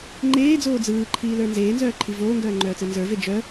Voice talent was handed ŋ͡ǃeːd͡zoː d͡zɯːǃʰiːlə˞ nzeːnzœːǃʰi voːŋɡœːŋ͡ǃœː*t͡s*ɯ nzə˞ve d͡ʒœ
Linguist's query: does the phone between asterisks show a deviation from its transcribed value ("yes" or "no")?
no